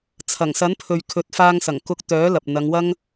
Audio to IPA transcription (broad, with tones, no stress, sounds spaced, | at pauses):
t͡sʰ ɐ˨˩ ŋ s ɐ˨˥ n pʰ ɵ˨ ɥ kʰ ɵ˨˥ t̚ f aː˧ ŋ s ɐ˨˩ ŋ k ʊ˧ k̚ t̪ œː˨˥ l ɐ˨ p̚ n̪ ɐ˨˧ ŋ w ɐ˥ ŋ